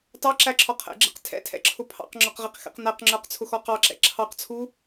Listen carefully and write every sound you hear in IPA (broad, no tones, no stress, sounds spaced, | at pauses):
t ɑ ǁ æ ǁʰ ɔ qʰ ɛ̰ ɡ͡ǁ ɛ̰ q tʰ ɛ̰ tʰ ɛ̰ ǁʰ ʊ pʰ ɑ̰ q ŋ͡ǁ ɔ q ʁ i q x ɛ̰ q n æ q ŋ͡ǁ ə˞ q t͡sʰ ʊ x ɔ q ɑ ǁ ɛ̰ ǁʰ ɑ q t͡sʰ u